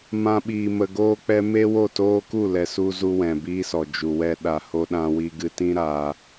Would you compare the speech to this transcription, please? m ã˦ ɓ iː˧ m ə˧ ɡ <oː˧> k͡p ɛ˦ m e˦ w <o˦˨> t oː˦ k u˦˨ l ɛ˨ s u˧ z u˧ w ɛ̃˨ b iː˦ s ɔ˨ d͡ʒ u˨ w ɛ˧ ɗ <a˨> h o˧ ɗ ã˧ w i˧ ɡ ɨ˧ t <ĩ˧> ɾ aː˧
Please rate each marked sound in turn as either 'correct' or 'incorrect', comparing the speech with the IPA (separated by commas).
incorrect, correct, correct, incorrect